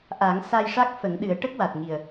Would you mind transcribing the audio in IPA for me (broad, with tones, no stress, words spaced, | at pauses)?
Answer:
ʔa˨˩˦ŋ sa˧jʂa˦˥k̚ fə˨˩˦ŋɗɨ˨˩˦ə̯ ʈə˦˥k̚wa˨˩t̚ŋi˨˩ə̯